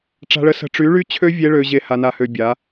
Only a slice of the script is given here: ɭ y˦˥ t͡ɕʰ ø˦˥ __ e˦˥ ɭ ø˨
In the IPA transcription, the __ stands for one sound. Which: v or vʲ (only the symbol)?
vʲ